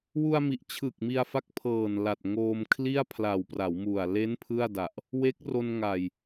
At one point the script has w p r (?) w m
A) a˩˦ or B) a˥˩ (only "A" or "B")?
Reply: A